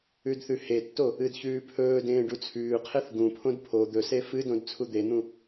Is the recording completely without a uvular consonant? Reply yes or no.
no